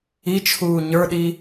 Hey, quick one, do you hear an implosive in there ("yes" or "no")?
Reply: yes